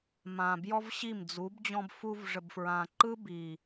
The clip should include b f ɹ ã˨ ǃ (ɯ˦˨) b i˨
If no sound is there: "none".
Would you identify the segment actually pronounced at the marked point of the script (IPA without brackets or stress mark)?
ɯ˦